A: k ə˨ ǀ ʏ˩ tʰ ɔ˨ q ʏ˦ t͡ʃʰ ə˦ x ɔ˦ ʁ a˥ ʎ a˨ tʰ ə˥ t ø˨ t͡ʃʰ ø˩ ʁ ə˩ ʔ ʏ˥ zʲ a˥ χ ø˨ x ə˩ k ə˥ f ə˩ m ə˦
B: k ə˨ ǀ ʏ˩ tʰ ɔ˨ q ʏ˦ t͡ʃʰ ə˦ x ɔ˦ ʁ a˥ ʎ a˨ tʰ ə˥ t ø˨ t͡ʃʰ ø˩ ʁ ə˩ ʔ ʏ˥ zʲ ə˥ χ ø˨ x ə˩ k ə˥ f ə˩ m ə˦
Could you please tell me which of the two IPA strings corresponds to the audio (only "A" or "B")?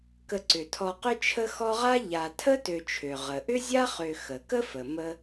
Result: A